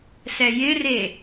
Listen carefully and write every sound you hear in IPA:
sɛjɪre

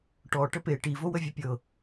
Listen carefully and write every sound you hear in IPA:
ʈɔ ʈəpe ʈivowə vʲɘpʲɤ

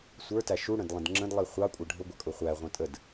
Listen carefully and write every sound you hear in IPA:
sʷə˞tæ ʃuɽə̃dlˠə̃d ŋ͡ǁə̃dlˠi χʷɑkʷʼʌ ɖʱʊɡʷʌkʼʊ χʷæʁʷə̃ tʼəd

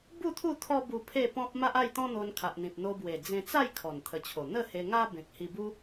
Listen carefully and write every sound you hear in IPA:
bu˥˧t̪ʰu˥˧ t̪ʰɔ˦bu˧ pʰe˥˧pɔ̃˦p̚ ma˦ʔa˥˧jt̪ɔ̃˦n̪o˧n kʰa˨ʔn̪ĩ˨p̚n̪o˧ bwe˨˩d͡zẽ˧t͡sa˥˧j kʰɔ˨˩nt̪ʰə˨˩t͡ɕʰo˨˩ n̪ə˥˧he˧ŋa˦ bẽ˨k̚hi˧bu˦

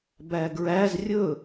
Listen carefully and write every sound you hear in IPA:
bæɡɹæz rʲɵ

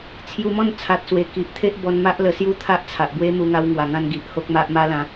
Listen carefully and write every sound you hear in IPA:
t͡sʰju˧mɔ̃˥˧n t͡sʰa˨t̚swe˨˩ki˨ʔ t̪ʰe˦ʔ bɔ˧nma˦ʔ lə˧sju˥˧t̪ʰa˦ʔ t͡sʰa˨ʔbwe˦mu˧ ŋa˧wŋwa˨˩ŋã˧n ɡi˨ʔho˦k̚ma˦ʔ ma˦lã˧

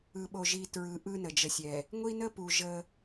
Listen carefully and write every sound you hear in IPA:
ɯ˨ɓo˨ʒi˨ tɹɯ˨˦ ʔɯ˦nə˨d͡ʒə˨sʲɛ˨ | ŋʷi˦nə˦pu˨ ʒə˦

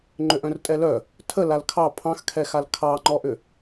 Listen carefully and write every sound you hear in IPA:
ŋ͡ǃʏʔœ̃rtʼɛlœ | tʰə lalkʰɑ pʰɑ̃xkʰɛxal kʰɑŋ͡ǃɔʔʏ

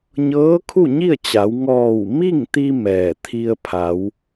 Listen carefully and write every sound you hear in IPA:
ɲɤː˧˥kʰu˥˨ɲi˥˨ə̯t͡ɕa˩˧w ŋɔː˧˩wmi˥˨ŋt̪i˧ mɛː˧˩ t̪ʰi˧ə̯pʰa˩˧w

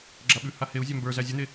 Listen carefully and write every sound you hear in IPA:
ɡ͡ǁaɓʉha heu̯zʲa mbə˞zæ zʲʉn̪e

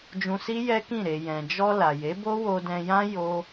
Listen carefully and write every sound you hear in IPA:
d͡ʒũ˧si˦ jɛ˦kĩ˦˨ ɾe˨jɛ̃˨d͡ʒɔ˧ la˨je˨˦bo˦ wo˧dɛ̃˧jã˦ jo˦

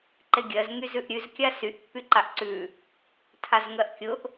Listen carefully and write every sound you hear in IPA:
ǃeɡʲɜz ŋyzʉʔɾʲʉz kʲasyʔ pːyǃaʔǀʉ | tʰazŋɜʔkʲʊʔ

